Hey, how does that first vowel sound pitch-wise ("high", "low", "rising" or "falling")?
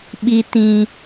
low